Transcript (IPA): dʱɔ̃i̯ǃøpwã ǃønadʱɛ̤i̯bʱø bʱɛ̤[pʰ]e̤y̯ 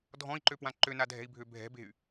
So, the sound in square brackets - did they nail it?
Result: no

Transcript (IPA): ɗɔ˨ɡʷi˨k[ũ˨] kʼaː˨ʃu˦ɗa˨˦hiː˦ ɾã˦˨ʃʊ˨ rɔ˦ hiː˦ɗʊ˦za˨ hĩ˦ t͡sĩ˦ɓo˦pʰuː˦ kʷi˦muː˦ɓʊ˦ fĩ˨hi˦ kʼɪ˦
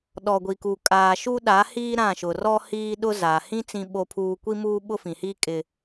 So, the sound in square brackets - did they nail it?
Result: no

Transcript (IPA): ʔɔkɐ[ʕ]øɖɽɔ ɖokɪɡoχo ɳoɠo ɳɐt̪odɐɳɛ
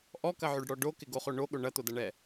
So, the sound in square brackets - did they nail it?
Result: yes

